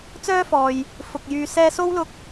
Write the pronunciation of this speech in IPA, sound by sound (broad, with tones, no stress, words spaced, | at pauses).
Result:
t͡sœː˥fɔː˨j | fʊ˨k̚ jyː˨sɛː˧so˥w lʊ˥k̚